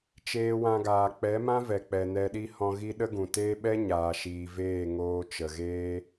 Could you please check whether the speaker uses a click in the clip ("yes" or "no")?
no